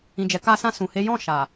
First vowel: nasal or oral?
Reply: nasal